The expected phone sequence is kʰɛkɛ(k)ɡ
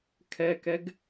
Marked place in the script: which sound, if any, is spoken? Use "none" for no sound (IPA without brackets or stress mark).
none